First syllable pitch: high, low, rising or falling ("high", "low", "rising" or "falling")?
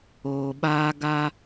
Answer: low